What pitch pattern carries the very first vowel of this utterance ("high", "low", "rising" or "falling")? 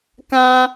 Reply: high